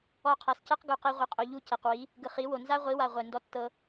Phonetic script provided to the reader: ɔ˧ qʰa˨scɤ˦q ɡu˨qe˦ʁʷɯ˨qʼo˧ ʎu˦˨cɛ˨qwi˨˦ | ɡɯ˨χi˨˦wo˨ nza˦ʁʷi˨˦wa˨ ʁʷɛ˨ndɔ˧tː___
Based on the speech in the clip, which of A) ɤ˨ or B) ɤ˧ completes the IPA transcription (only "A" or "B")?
B